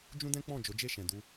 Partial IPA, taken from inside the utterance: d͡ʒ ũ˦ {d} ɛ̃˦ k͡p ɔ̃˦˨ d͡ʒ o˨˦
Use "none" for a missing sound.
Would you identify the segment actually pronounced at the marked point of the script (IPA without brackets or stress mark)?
d